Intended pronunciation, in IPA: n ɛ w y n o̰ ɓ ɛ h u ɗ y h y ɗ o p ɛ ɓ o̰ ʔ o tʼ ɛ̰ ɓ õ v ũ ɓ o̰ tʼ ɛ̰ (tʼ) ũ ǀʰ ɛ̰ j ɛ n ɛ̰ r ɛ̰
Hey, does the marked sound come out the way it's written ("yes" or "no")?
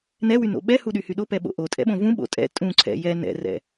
yes